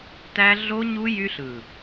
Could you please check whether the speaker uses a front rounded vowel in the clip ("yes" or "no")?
yes